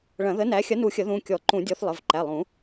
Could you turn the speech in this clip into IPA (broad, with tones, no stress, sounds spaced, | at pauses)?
ɭ ɐ̃˨˩˦ ð ə˨˥ n æ˨˥ xʲ ɐ˨˥ n u˨˩˦ xʲ ə˨˩˦ ð ũ˩˧˩ kʲ ɔ˨˩˦ ǃ ũ˨˩˦ dʲ ɔ˨˥ θ lˠ ə˩˧˩ v ǃ æ˩˧˩ lˠ ũ˨˩˦